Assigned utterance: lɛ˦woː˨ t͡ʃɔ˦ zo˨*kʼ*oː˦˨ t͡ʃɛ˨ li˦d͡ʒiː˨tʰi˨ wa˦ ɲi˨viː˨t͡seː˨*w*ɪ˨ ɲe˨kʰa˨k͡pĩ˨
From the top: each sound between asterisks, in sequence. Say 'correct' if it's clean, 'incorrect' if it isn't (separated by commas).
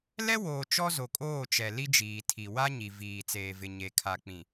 correct, incorrect